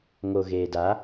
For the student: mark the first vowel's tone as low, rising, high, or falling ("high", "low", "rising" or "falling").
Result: low